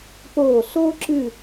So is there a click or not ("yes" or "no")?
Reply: yes